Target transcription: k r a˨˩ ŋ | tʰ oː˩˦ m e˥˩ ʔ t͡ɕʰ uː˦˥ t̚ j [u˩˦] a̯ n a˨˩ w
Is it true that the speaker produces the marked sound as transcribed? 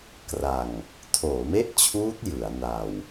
no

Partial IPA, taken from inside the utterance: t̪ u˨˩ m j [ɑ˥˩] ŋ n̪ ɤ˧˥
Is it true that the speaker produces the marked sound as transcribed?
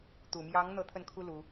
no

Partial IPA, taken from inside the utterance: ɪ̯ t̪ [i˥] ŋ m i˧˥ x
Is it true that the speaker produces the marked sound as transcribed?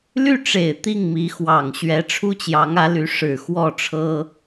no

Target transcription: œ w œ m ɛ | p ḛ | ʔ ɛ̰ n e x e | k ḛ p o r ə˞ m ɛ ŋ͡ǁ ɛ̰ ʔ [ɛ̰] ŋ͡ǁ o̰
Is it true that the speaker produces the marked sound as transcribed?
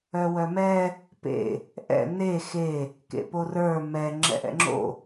yes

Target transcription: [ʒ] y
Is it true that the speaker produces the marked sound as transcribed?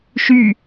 no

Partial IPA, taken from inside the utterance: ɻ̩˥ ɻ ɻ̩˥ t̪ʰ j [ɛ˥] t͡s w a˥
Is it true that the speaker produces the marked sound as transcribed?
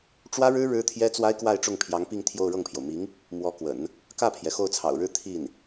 yes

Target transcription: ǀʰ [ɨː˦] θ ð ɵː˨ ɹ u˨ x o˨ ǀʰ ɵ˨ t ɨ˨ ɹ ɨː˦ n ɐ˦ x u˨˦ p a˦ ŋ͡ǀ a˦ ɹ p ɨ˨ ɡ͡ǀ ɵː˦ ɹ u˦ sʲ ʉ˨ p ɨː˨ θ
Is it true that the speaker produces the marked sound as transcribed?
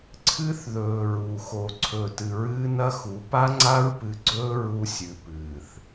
no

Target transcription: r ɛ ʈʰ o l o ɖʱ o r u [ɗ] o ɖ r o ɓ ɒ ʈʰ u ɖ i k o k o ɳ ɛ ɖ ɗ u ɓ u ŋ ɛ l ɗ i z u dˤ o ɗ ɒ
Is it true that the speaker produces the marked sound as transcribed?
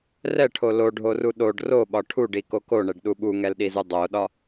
yes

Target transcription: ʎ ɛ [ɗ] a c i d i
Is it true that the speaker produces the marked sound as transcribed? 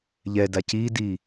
no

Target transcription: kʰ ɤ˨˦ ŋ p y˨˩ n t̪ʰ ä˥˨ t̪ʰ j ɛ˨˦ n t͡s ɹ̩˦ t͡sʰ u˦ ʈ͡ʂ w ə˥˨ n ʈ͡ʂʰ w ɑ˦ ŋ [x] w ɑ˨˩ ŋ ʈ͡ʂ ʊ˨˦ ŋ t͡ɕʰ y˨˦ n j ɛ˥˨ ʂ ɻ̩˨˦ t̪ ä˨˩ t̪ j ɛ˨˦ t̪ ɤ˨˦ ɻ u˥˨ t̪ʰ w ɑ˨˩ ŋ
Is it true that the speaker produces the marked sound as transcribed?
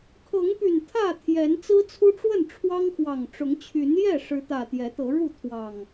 yes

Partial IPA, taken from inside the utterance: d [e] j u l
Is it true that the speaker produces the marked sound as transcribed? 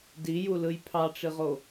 no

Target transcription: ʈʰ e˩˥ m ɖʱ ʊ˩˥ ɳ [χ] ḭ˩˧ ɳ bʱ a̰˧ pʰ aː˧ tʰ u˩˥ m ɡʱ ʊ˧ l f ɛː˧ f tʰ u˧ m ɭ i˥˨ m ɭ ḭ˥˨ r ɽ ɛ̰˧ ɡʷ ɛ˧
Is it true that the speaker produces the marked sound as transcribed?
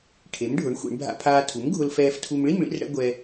no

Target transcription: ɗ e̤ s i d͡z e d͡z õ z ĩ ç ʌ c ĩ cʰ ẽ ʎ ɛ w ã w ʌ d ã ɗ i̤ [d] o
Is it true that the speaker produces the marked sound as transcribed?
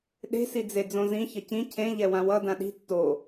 no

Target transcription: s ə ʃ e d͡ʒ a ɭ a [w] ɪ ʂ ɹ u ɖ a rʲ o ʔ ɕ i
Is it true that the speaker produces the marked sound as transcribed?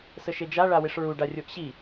yes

